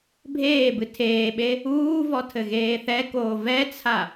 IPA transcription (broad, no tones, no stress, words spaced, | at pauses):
bʱeːbɨ tʰeːɓe | uːvɔ tʰɘɣeːθɛkoː vɛt͡sʰa